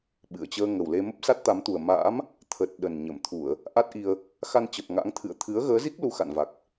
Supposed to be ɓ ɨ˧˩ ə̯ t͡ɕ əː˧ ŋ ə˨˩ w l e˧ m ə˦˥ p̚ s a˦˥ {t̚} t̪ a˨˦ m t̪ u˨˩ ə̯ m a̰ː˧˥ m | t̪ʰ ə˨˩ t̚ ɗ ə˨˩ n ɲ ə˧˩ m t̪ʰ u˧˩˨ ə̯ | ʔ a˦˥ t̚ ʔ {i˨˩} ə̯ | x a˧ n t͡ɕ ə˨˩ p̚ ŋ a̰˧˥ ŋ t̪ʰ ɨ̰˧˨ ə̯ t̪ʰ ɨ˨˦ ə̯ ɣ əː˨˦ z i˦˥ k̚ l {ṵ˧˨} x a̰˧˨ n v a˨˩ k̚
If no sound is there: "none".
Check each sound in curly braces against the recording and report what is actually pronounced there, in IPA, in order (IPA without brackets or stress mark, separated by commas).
t̚, i˧, u˧